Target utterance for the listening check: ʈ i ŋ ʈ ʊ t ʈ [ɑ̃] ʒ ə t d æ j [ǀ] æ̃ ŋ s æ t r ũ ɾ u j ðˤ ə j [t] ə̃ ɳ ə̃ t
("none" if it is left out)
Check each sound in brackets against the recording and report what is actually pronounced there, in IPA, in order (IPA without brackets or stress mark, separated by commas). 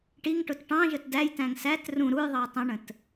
ɑ̃, t, tˤ